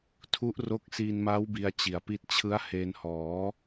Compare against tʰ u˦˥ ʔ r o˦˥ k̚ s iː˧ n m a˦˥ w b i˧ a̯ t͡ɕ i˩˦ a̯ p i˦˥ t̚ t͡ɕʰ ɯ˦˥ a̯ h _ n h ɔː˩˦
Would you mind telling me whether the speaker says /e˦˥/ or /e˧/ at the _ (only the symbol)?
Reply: e˧